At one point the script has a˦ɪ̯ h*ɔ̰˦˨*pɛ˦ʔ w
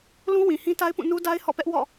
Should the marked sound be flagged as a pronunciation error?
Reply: no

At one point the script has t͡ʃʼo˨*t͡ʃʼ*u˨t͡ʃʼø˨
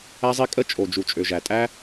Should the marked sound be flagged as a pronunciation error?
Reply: yes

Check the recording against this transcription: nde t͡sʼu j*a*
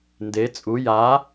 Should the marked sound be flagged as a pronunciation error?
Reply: no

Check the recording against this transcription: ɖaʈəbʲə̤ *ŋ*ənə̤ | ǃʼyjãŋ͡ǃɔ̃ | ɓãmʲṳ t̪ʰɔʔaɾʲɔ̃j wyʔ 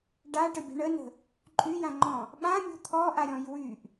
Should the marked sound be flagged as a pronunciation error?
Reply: yes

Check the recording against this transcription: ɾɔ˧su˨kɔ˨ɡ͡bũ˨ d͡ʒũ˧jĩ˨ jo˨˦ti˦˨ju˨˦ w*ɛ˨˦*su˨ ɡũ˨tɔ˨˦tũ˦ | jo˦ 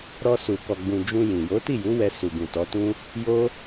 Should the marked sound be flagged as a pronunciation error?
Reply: yes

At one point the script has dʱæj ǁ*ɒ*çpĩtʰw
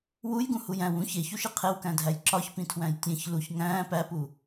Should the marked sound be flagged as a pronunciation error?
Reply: no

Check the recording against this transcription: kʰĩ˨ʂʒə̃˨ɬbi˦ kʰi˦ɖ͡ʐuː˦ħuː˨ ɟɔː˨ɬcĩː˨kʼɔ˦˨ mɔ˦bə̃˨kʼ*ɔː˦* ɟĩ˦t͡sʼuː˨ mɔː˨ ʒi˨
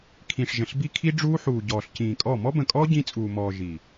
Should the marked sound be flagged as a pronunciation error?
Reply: no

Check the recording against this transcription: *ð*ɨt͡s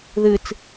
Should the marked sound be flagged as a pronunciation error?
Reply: no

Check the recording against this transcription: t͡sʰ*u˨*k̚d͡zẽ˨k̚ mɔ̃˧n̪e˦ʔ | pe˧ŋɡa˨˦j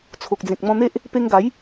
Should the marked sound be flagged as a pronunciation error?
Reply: yes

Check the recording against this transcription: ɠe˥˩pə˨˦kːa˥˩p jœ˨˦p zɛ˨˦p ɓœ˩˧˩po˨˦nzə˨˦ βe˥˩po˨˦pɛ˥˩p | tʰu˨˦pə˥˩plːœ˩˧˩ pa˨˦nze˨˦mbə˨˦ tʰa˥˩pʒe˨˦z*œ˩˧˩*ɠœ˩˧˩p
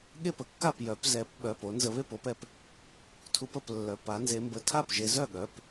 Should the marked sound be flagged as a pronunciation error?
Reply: yes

